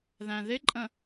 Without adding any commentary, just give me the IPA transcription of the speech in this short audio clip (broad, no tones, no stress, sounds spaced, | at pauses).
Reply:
ð æ̃ ð ɪ ǃʼ ə̃